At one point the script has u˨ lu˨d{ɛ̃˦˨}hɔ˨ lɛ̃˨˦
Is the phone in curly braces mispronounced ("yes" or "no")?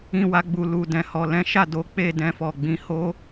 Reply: yes